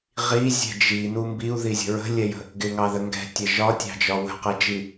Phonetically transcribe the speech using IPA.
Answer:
ʁ i zʲ ɛ̤ d͡ʒ i n u m b i u̯ ð i zʲ ə̤ ɹ ə̤ lʲ ɛ j ə̤ | ɡ ɪ ŋ ɑ ð ə ŋ ɡ ɛ̤ tʲ ɛ ʒ ɒ tʲ ɑ̤ d͡ʒ ɒ w ə̤ q ɛ d͡ʒ i

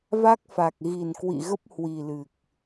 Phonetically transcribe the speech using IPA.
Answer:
v a˦˥ k̚ f a˨˩ k̚ ɣ i˨˩ n k w ḭ˧˨ ɣ ə˦˥ p̚ h w i˨˩ l ɨ˨˩ k̚

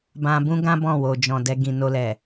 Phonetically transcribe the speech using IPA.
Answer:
b ã˧ b ũ˦ ɡ ã˦ b ɔ̃˦˨ w o˨ d͡ʒ ɔ̃˨ d ɛ˧ ɡ ĩ˨ n o˧ l ɛ˨

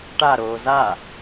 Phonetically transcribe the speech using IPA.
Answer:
ʈ a ɾ oː z a

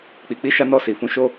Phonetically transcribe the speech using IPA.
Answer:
k͡p i˨ k͡p i˨˦ ʃ a˧ n ɔ˧ s i˨ f ũ˨˦ ʃ o˧

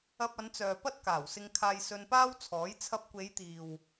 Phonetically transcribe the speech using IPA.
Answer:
ɐ˧ p̚ ɐ˨˧ n t͡s œː˨ p ɐ˥ t̚ k aː˨˩ w s ɪ˧ ŋ kʰ aː˧ j s ɵ˧ n p aː˥ w t͡sʰ ɔː˨˥ j t͡sʰ ɐ˧ p̚ kʷ e˨˧ j t̪ iː˨ w

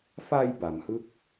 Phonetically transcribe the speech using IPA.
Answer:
f a˧ j b a˩˦ m h ɯ˥˩ k̚

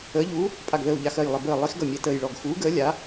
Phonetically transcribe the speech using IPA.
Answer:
əː˨˥ ʎ uː˨˥ | pʼ a˧˩ ɡ ð əː˧˩ u̯ ʎ a˧˩ x ɜ˧˩ j lˠ ə˧˩ b əː˧˩ lˠ i˨˥ x ɡ ʌ˧˩ mʲ ɛ˧˩ t əː˧˩ j ɭ ɔ˧˩ ɡ x uː˨˥ ɡ əː˨˥ lʲ a˨˥

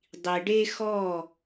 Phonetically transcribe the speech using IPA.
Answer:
dˤ i˨ ɖ e˦ x ɔ˦˨

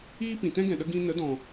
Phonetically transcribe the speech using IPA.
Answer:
iː˦ p ĩ˨ t ɛ̃˦ ɡ ɛ̃˨ ɗ ə˧ ɡ ĩ˦ n ə˨˦ d ɔ̃˨

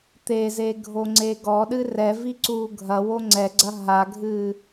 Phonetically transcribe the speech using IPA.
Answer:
t̪ e z e ɡʱ o ŋ͡ǀ e ɡ ɔ ɗ ɨ r ɛ v i ǀ uː ɡʱ ɐ w o ŋ͡ǀ ɛ ɡ͡ǀ ɐ ɦ a ɡʱ ɨː

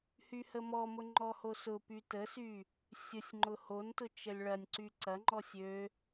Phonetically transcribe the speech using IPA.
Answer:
h y h ə m ɔ m ʊ ŋ͡ǃ ɔ h o s ʊ p y t ə s y | sʲ ʊ sʲ ŋ͡ǃ ʊ h o n t ʊ t͡ʃ ə lʲ ɭ ɐ nʲ ǀ y ǀ ɐ ŋ͡ǃ ɔ sʲ ø

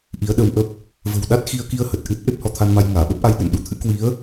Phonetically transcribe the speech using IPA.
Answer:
ʔ i˨˦ ə̯ ɗ ə˧ w ʔ ə˦˥ p̚ | v ə̤˨˩ w ɗ a˦˥ t̚ x i˧ ə̯ k i˧ ə̯ h ə˨˩ t̚ ʔ ɨ˦˥ t̚ ʔ e˦˥ p̚ h ɔ˧ t̪ʰ a˧ n m a˧ j ŋ aː˧˩ ɓ ə˦˥ p̚ ʔ a˧ j ɗ ə̰˧˨ n ɗ u˨˦ t̪ʰ ɨ̰˧˥ k w i˨˦ ə̯

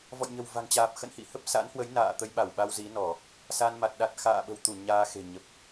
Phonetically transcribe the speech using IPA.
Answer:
v ɔ̰˧˨ j ɲ ə̤˨˩ w v a̤˨˩ ŋ t͡ɕ aː˨˩ p̚ x ə̰˧˨ n h ḭ˧˨ h ə˦˥ p̚ s a̰˧˥ n h w ə˨˦ j n a̰ː˧˨ t̪ ə˧ j ɓ a˧˩ w ɓ a˧ w z i˨˦ n ɔ˧˩˨ | s a˧ n m a˨˩ t̚ ɗ a˨˩ t̚ x a̰ː˧˨ ɓ ə̤˨˩ w t̪ u˧˩ ɲ aː˧ x e̤˨˩ ɲ ə˨˩ p̚

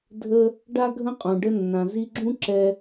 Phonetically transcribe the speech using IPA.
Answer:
dʱ ə˦ | ɖ a˦ ɡʱ ə̃˦ qʼ ũ˨ ɖ ə˧ nː ã˨ z i˧ ɡ͡ǁ ũ˦ ǁ ɛ˧

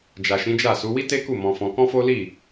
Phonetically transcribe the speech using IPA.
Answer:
d͡ʒ a˨ ʃ ĩ˨˦ d͡ʒ a˦˨ s u˨˦ w i˦ t e˦ k u˦˨ m ɔ̃˧ f ɔ̃˧ k ɔ̃˦ f o˦ l i˦˨

